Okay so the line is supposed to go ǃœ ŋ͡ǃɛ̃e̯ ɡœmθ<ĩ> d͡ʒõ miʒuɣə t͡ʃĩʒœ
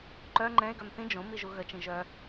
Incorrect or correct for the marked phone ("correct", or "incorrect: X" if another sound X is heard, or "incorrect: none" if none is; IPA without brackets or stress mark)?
correct